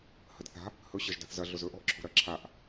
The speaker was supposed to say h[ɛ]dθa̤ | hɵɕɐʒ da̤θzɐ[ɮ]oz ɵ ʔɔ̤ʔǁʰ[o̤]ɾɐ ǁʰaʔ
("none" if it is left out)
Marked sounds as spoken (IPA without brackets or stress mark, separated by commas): ə, ɮ, o̤